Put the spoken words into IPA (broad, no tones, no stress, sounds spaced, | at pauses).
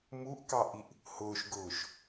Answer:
m u ʔ k ɑ ʔ i ʔ | h ʊː ʃ ɡ ʊː ʃ